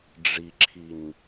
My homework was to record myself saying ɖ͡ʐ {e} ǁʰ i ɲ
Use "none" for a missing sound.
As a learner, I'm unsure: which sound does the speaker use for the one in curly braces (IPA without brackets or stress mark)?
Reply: i